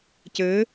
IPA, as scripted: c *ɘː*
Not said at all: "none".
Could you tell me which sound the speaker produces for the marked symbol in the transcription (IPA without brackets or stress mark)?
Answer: ɘː